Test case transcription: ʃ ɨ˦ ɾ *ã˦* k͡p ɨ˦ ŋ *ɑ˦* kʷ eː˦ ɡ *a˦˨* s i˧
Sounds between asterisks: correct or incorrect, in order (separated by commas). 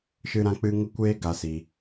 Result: correct, incorrect, incorrect